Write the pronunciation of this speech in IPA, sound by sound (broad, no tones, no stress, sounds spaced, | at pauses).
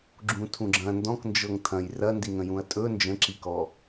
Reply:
ɡ͡ǁ ũ tʰ ũ ɡ͡ǁ ɐ̃ n d ɔ̃ k n d͡ʒ ɤ ŋ tʰ ɐ̃ j r ɐ n d i ŋ ə̃ j ũ ɐ̯ tʼ ɵ n d͡ʒ ə̃ ǁ i k ɔ